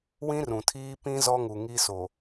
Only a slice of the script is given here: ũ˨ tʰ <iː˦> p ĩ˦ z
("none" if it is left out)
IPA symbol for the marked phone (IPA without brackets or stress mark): iː˦